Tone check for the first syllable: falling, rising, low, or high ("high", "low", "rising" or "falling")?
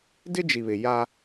high